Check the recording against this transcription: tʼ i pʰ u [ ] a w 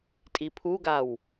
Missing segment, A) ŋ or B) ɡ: B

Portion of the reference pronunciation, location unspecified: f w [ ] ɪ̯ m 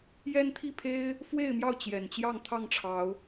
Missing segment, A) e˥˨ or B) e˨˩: A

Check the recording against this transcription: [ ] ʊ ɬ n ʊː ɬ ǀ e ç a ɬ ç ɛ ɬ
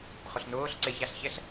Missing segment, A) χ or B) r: A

